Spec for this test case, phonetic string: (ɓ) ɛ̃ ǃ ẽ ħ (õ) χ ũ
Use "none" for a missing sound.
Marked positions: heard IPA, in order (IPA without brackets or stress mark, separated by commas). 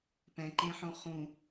p, õ